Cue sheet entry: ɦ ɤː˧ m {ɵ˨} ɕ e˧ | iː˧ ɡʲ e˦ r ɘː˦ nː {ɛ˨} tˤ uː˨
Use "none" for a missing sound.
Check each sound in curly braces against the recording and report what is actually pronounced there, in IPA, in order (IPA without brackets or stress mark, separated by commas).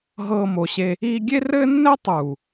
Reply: o˨, ɛ˦